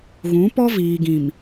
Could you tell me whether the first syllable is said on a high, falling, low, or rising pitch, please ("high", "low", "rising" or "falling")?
rising